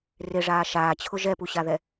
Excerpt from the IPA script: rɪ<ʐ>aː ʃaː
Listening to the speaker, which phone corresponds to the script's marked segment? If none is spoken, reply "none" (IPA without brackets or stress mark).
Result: ʐ